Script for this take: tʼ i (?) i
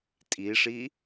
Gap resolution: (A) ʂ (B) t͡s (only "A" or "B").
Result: A